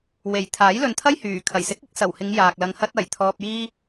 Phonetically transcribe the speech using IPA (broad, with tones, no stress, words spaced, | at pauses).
we˨˩jt̪ʰaː˨˥jlɵ˨nt̪ʰɐ˥j hyː˨˩ kʰɐ˨˩jsɪ˨˥k̚ɪ˨˥k̚ sɐ˨˩whɪ˨˧ŋ jaː˨k̚lɐ˧ŋ hɐ˧t̚ɐ˨˩j t̪ʰɔː˧p̚jiː˥